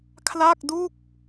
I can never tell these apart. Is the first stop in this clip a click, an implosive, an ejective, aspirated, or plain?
aspirated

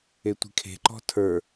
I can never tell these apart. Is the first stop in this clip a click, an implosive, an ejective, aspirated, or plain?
plain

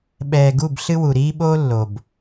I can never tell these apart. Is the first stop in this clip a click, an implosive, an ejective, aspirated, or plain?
implosive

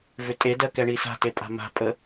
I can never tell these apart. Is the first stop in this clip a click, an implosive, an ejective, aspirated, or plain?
ejective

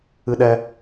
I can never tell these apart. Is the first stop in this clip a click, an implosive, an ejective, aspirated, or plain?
implosive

